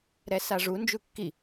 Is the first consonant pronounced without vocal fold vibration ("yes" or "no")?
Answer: no